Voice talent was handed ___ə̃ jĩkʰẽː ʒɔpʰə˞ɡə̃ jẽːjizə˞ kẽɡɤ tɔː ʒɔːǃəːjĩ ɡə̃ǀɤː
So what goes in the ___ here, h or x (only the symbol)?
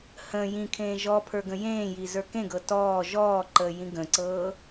h